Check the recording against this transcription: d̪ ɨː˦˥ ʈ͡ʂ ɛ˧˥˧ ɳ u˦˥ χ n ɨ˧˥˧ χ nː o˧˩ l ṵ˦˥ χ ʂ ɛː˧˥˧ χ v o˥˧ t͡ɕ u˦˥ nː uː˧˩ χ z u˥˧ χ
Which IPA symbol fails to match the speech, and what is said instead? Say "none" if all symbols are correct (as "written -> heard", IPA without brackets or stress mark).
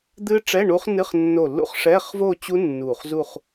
none